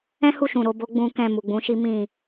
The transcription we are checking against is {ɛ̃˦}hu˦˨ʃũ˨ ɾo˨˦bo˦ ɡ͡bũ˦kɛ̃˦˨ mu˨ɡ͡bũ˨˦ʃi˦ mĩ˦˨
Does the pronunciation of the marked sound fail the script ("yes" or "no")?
no